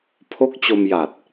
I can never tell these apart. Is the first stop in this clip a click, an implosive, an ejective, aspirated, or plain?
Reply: aspirated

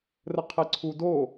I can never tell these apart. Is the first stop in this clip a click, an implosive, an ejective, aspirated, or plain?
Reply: aspirated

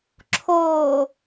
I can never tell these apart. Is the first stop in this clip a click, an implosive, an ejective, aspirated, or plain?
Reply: click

